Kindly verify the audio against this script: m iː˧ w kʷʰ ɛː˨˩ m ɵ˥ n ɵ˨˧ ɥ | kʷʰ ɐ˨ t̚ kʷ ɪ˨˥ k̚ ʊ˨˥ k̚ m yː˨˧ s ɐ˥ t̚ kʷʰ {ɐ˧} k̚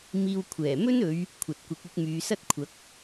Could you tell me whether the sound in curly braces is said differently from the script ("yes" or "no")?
yes